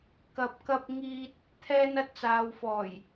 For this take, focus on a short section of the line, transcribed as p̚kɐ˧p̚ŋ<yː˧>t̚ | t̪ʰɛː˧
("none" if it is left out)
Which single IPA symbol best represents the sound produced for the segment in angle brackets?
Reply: iː˧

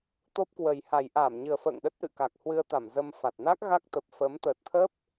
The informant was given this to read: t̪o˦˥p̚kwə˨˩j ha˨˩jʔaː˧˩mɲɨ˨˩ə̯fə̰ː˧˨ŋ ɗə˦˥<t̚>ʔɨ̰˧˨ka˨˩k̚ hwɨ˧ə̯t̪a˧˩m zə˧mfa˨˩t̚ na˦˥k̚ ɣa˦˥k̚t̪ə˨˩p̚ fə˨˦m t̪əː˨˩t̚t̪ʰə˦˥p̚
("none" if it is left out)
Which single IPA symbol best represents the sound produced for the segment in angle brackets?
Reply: t̚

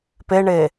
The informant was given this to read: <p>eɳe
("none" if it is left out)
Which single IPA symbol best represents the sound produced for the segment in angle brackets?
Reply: p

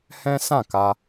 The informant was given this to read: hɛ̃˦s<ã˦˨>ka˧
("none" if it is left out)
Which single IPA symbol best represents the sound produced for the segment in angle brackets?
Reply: ã˦˨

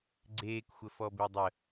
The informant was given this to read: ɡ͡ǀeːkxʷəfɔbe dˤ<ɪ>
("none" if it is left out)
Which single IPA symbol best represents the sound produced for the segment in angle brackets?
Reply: ə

